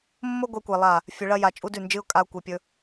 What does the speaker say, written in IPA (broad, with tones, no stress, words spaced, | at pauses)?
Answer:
mːo˦ɡʷe˧kʷe˨ lˠa˦˨ | fʲɵ˧ɭɐ˦ ja˧t͡ʃʼu˦dʉ˦˨nd͡ʒɨ˦ʊ̯ kʼa˧ʊ̯kʷe˨pʲɵ˧